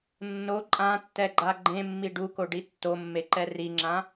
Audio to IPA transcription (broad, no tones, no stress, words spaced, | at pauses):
nːo ǃʼãtːɛɡ͡ǃa ɡ͡ǃẽmːi ɖukoɖi tːomːeǃɛ riŋ͡ǁã